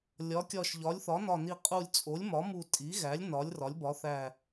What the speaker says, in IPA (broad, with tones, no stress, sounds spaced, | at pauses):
lʲ ɒ˩˥ kʲ ɒ˧˩ ʃ ʎ ɒ˩˥ lʲ θ ɒ˩˥ n ɒ˧˩ n i˧˩ qʼ u˧˩ lʲ t͡sʼ o˩˥ lʲ m ɒ˩˥ m u˧˩ tʼ i˩˥ ɣ æ˩˥ lʲ n ɒ˩˥ lʲ r ɒ˩˥ lʲ b ɒ˩˥ θ æ˧˩